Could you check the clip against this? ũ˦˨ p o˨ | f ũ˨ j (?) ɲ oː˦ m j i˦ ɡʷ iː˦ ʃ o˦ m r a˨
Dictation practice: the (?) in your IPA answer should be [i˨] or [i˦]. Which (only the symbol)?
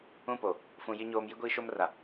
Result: i˦